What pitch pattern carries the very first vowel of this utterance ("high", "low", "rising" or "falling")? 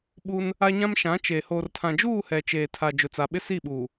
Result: high